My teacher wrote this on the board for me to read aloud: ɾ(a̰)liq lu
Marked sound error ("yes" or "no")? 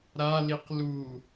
yes